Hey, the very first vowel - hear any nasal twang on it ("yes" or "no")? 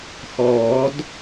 no